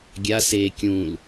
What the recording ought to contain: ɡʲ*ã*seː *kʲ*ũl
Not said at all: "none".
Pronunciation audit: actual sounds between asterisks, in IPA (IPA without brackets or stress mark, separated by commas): a, kʲ